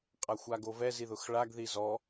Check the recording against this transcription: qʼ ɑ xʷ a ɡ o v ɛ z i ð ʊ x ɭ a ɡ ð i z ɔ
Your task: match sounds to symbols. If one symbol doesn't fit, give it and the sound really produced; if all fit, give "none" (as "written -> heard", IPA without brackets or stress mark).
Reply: ɑ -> a